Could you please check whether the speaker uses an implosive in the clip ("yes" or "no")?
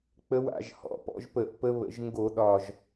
yes